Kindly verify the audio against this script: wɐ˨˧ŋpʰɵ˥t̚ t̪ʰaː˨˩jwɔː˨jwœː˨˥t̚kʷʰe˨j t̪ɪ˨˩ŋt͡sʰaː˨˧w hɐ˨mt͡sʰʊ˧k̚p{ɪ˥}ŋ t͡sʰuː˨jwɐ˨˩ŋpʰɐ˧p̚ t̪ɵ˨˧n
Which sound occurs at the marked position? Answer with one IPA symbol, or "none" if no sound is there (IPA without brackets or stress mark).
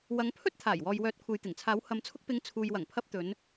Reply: ɪ˨˧